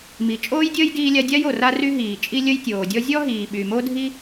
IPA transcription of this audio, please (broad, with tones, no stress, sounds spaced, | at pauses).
m i˩ t͡ʃʼ oː˥ j dʲ əː˥ j d iː˥ lʲ a˥ dʲ a˥ j o˩ r a˥ r y˥ ɦ iː˩ t͡ʃʼ i˥ lʲ ə˥ j tʲ oː˩ dʲ ɔ˥ zʲ ɔ˥ ɦ iː˩ ɓ y˩ m o˥ dʱ i˥